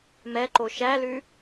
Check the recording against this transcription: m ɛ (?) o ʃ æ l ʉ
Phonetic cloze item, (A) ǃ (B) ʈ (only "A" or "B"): A